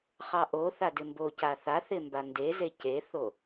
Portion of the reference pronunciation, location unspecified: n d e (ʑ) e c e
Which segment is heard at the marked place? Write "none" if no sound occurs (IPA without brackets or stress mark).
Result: z